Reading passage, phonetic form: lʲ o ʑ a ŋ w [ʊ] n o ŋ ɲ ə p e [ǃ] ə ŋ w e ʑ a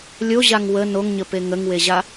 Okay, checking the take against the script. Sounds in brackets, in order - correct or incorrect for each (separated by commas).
incorrect, incorrect